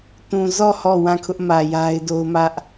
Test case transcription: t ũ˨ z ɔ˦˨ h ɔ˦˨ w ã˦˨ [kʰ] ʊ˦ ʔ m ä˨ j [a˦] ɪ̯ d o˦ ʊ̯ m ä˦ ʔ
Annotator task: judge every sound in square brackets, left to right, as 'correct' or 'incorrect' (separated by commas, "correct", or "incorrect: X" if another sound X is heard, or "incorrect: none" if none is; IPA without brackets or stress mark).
correct, correct